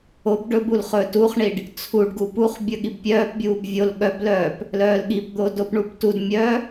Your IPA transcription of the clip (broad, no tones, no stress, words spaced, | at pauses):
ob ɖɵbul χɵːtuχɳiɖ | t͡sʰuɖɡu puχbʲɵ ɠibpʲœːpbʲuːb vʲol ɠœblœːp | lœːlɠipd̪o dopɳubtudmʲœ